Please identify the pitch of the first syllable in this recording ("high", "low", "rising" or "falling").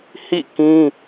falling